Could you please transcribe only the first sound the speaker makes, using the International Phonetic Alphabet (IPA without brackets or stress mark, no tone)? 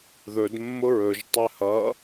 ð